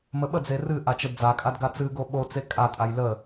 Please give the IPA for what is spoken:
m ə ɓ ə d͡z e r ɨ ʔ a t͡ʃ ə d d͡z a kʼ a d ɡ a t͡s ɨ ɡ o ɓ o t͡s e kʼ a tʼ a j l ə

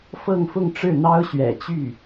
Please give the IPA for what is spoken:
f ɤ˥˧ ŋ f ʊ˥˧ ŋ ʈ͡ʂ ɻ̩˥˩ n̪ ɑ˥ ʊ̯ ɕ ɥ ɛ̰˨˩ t͡ɕ y˥˩

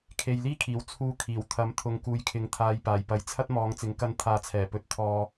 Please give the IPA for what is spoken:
kʰ e˨ j l iː˥ kʰ iː˨˩ w t͡sʰ uː˧ kʰ iː˨˩ w t̪ʰ ɐ˨˥ m t̪ʰ ʊ˨ ŋ k uː˨ j kʰ ɪ˨ ŋ t̪ʰ aː˨ j p aː˨˩ j p ɐ˨ j t͡sʰ ɐ˥ t̚ m ɔː˨˧ ŋ t͡s ɪ˨ ŋ k ɐ˧ n t̪ʰ aː˨˧ t͡sʰ ɛː˨˩ p ɵ˨˥ t̚ t̪ʰ ɔː˧

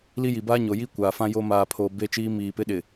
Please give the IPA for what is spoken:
l i˦ j i˨ b aː˦ ɲ o˨ j i˦ kʷ aː˨ f ã˦ j o˦ m aː˨ pʰ oː˨ b e˦ t͡ʃ iː˦ m iː˨ p ɪ˦ ɗ ɪ˨

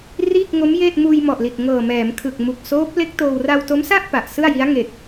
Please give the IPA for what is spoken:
r iː˥˩ k̚ ŋ o˦˥ m j eː˥˩ t̚ m uː˧ j m ɔ˨˩ ʔ l i˨˩ t̚ ŋ ɤː˨˩ m ɛː˩˦ m kʰ ɯ˨˩ k̚ m u˨˩ k̚ s oː˦˥ p̚ l e˦˥ k̚ t oː˧ w r a˧ w t o˦˥ m s a˥˩ ʔ p a˨˩ ʔ s ɯ˥˩ a̯ j i˦˥ a̯ ŋ e˨˩ k̚

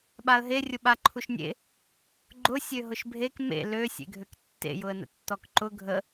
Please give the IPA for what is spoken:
ɓ a ə̯ ɦ e rʲ ʊ ɓ a ǃʰ u ʃ nʲ ḛ | ɡ͡ǃ ʊ sʲ ø ɦ ʊ ʃ bʱ e k m ḛ l ø sʲ ḛ ɡʱ ø k tː ḛ j ʊ ə̯ n ə̰ tː ɔ k ǃ ʊ ɡʱ ə

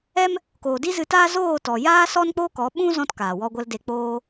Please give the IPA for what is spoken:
ɛ˦ m | k oː˨ d i˦ z ɨ˧ t aː˦ z oː˦˨ t ɔ˨ j aː˦ s ɔ˦ n k͡p o˦ k ɔ˨˦ ɓ ũ˦ z ɔ̃˧ t k aː˨ w ɔ˧ ɡʷ ə˧ l d e˧ k͡p oː˦

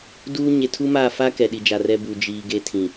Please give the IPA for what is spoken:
d uː˦ ɲ e˨ tʰ u˦ m a˦˨ f a˦ k ɛ˨ ɗ i˨ d͡ʒ a˨ r ɛ˦ b u˨ d͡ʒ iː˨ ɡ e˦ tʰ ĩ˨

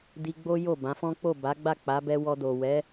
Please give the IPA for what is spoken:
d i˧ ɡ͡b o˦ j o˦˨ b ã˨˦ f ɔ̃˦ k͡p o˦˨ b a˨˦ ɡ͡b a˦˨ k͡p a˨˦ b ɛ˧ w ɔ˧ d o˨ w ɛ˨˦

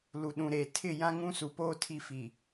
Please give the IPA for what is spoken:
l u˨ ɗ ũ˨ ɾ eː˨ tʰ ɪ˦˨ j ã˦ ŋ ũ˦ s u˨ p oː˦ tʰ i˦ f i˨

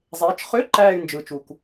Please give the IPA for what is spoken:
zˤ eː˨˦ t͡ʃ χ ø˧˥˧ ǃ æː˥˧ y̯ n d͡ʒ ɯ˨ t͡ʃ u˨ k

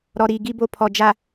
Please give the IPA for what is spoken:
ɾ ɔ˨ ɾ iː˨ ɡ i˦ b o˦ pʰ ɔ˨ d͡ʒ a˨

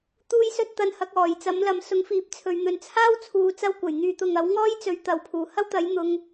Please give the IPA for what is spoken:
t̪ uː˥ j s ɵ˥ t̚ t̪ ɐ˧ n h ɐ˨˥ k̚ ɔː˨˩ j t͡s ɐ˨˥ m l ɐ˨˧ m s ʊ˨˥ ŋ f iː˨˥ p̚ t͡sʰ ɵ˨ ɥ n̪ ɵ˨ n t͡sʰ aː˥ w t͡sʰ uː˨ t͡s ɐ˥ w kʷ ɐ˨˩ j n̪ yː˨ t̪ ʊ˨ ŋ ɐ˨˥ w ŋ ɔː˥ j t͡s ɵ˨ ɥ t̪ ɐ˨ w pʰ uː˨˩ h ɐ˥ w t̪ ɐ˨˥ j n̪ ʊ˧ ŋ

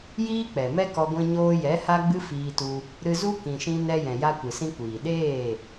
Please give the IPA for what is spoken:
j iː˦ k͡p ɛ˨ m ɛ˦ k ɔ˧ ɡʷ ĩ˧ ɲ oː˧ j ɛ˨˦ h a˦ ɡ͡b ɨ˦ f iː˧ t u˧ | ɾ ɨ˧ z u˦ k ĩ˧ ʃ ĩ˦ n ɛ˧ j ɛ̃˨ j a˧ kʷ ɨ˨ s ĩ˧ kʷ iː˨ ɗ eː˦˨

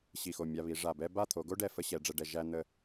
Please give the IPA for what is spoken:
ɕ i˧˩ x o˧˩ mʲ a˧ β i˩˧ ʐ a˧˩ b ɛ˥ b a˥˧ t̪ʰ o˩˧ ɡ o˥ ɖ ɛ˧˩ f ə˥ ɕ ɛ˩˧ ɖ͡ʐ ɛ˧ ɖ ɛ˧ ʒ æ˥ n̪ ə˥˧

